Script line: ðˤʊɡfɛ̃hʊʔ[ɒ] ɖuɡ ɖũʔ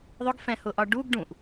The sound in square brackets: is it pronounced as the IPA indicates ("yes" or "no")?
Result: yes